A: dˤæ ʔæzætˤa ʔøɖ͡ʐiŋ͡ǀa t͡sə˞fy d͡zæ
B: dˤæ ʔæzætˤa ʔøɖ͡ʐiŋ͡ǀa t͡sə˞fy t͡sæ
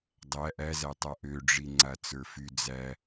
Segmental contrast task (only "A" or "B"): A